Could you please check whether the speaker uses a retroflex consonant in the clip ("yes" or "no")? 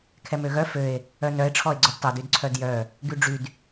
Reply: yes